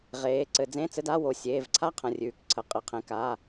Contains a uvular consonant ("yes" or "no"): yes